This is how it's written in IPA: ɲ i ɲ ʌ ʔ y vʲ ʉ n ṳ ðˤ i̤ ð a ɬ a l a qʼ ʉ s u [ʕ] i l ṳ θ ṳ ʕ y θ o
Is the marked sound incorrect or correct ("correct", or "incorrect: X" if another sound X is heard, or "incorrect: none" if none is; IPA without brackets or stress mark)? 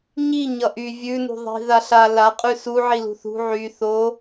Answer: correct